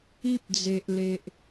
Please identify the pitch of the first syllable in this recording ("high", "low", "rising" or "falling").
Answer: high